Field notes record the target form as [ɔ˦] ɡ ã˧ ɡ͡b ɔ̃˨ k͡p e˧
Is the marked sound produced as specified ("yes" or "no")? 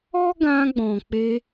yes